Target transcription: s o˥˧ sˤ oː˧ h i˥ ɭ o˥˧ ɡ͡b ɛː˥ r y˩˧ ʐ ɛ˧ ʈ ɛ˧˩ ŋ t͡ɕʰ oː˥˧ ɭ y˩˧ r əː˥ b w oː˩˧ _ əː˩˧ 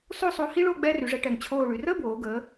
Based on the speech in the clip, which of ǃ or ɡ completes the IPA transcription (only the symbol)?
ɡ